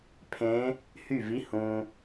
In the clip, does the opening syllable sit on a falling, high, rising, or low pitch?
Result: rising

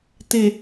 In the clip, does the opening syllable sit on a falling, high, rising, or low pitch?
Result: low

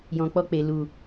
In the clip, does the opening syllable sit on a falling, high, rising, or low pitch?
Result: low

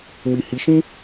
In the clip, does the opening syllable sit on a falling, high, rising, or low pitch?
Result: low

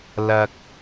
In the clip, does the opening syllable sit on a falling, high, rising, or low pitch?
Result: low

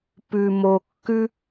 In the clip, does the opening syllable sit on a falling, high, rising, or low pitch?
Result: low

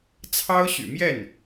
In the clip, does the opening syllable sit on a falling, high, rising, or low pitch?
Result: high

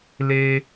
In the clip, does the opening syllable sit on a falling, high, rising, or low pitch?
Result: high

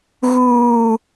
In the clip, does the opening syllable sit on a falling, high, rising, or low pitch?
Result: high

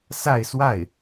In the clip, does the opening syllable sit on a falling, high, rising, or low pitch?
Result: falling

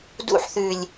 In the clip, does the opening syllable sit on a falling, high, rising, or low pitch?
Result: high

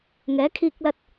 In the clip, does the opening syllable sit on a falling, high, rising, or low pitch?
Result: rising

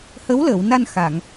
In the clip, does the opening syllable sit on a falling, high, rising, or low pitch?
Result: rising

